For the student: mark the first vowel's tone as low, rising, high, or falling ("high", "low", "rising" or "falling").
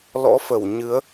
rising